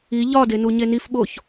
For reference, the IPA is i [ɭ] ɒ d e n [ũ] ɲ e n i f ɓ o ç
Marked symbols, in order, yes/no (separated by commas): no, no